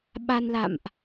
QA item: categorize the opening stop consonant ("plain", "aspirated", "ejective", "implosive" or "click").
implosive